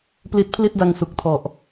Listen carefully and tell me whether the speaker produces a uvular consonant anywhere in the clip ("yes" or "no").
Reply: no